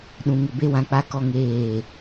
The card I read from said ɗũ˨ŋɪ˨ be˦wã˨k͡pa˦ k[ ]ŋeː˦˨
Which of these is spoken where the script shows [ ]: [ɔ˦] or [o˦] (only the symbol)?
ɔ˦